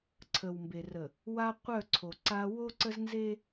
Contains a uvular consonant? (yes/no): yes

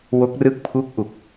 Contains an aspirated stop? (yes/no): yes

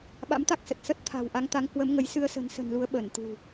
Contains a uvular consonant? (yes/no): no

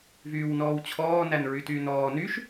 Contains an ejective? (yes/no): no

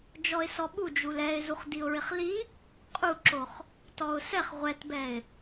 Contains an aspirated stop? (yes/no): no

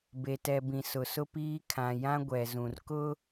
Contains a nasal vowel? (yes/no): yes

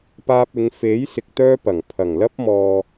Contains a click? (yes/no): no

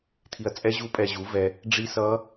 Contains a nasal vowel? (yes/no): no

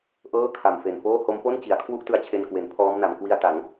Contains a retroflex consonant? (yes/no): no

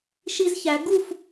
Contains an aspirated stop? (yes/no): no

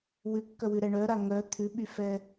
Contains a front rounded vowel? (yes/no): yes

